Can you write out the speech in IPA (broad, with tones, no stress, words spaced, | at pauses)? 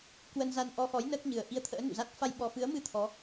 kwə˧nza˧n ʔɔ˧xɔ˨˦j nəː˦˥k̚ɲɨ˨˩ə̯ ʔi˧ə̯t̪ʰə̰ː˧˥ nṵ˧˨za˦˥t̚ fa˧jɓɔ˨˩fɨ˨˦ə̯mɨ˧ t̪ʰɔ˨˦